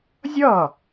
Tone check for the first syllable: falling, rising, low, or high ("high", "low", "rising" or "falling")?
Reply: falling